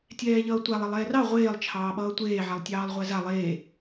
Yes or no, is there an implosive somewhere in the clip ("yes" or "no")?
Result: yes